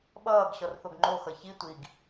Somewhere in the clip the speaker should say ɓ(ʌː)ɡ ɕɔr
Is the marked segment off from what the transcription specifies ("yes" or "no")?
no